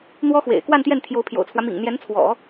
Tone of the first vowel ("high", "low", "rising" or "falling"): high